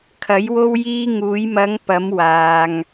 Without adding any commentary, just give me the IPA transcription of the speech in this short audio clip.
kʰɐ˨˧jwo˧wjiː˧ ŋuː˨˧jmɐ˨˧ŋpɐ˨˧m waː˨ŋ

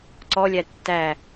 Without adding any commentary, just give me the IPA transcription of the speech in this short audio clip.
ǀɔlʲæ tːæ

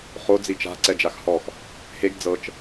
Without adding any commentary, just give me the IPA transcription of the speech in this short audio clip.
χo d͡zit͡ʃa̤ ǀɛd͡ʒaxhɔx | heɡ d͡zɤt͡ʃ

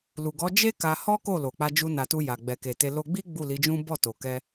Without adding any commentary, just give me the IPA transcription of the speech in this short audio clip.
lu˨ɡɔ˨˦d͡ʒe˦ ka˧hɔ˦ ko˦˨lo˨k͡pa˧ d͡ʒu˧na˨tu˧ ja˨ ɡ͡bɛ˨ke˨te˧ lo˧ɡ͡bi˦ ɡ͡bu˦˨li˨˦d͡ʒũ˦ bɔ˦˨to˨kɛ˧

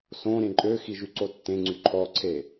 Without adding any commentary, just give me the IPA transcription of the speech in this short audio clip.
sõ ɾẽǃʼøxi ʒyǀotːẽŋ͡ǀy ǃʰɔǀʰe

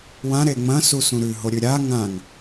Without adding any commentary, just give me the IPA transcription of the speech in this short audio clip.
wã ɾeŋ͡mɐ̃ susũɾʉ ɦoɾʲʉɾʲa ŋãŋ

